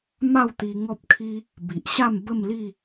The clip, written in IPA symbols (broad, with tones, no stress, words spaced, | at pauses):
ma˥˧wt̪i˧ ŋɔ˦p̚kʰi˦ | bi˨ʔɕa˥˧m bə˥˧mli˥˧